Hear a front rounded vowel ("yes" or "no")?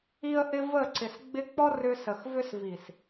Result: yes